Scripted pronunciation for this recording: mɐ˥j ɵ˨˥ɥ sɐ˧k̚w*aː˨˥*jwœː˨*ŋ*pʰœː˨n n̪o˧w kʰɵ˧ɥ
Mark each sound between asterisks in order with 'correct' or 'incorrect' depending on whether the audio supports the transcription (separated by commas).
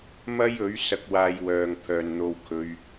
incorrect, correct